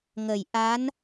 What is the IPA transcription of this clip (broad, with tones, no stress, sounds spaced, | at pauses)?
ŋ ə˨˩˨ j ʔ a˧˥ n